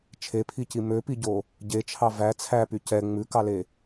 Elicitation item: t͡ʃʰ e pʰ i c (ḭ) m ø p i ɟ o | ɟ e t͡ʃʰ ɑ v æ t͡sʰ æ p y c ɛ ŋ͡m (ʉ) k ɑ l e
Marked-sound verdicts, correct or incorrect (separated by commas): incorrect, correct